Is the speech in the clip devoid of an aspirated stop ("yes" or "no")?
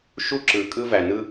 yes